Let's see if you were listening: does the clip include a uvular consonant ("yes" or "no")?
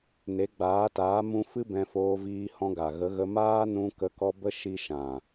no